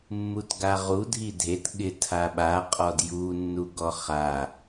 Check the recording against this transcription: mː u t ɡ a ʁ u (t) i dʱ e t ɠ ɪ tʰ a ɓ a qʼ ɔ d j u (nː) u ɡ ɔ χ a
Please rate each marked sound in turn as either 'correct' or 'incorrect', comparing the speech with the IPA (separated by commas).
incorrect, correct